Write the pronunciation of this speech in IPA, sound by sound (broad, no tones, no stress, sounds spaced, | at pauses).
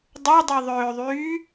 dˤ u dˤ i ðˤ øː ðˤ yː